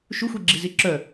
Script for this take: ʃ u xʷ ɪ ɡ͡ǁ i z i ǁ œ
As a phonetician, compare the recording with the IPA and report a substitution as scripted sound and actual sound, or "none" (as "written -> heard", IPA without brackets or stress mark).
ɪ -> i